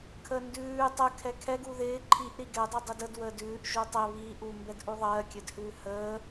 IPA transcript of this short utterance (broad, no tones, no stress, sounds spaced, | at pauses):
kʰ ə n d ʉː tˤ ə kʰ ɛ kʰ ɛ ɡ u ð ɪː ǃʰ i ʔ ɾ i ɡ ɛ dˤ ʉ dˤ ɘ d ə d w əː d ʉː ʔ ʒ u tˤ ɘ β i ʔ u m b ɛ d ʔ u ðˤ ɜː kʲ ɘ d h ʉː h əː